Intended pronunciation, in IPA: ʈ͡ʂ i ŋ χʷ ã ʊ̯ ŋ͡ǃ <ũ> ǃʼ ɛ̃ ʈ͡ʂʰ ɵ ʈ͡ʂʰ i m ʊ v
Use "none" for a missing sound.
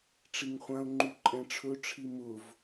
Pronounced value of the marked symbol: u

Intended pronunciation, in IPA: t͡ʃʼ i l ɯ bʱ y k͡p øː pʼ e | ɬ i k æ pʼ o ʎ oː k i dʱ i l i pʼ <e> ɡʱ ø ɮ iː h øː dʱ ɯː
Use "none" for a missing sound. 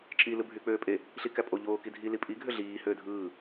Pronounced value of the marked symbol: i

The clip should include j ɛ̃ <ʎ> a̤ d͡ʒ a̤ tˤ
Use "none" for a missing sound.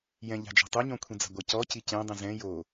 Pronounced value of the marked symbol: ʎ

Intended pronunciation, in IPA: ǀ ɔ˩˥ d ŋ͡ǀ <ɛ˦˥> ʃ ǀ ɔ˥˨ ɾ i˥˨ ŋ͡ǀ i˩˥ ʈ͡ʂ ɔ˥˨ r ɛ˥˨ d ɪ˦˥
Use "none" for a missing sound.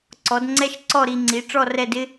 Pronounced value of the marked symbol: ɛ˦˥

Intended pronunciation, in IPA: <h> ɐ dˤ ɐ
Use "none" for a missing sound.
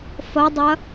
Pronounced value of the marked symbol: f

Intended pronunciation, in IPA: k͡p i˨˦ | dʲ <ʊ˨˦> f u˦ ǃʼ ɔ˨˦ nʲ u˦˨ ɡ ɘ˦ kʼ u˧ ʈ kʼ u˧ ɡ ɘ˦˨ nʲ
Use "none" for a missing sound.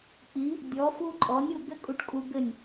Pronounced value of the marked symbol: ɔ˨˦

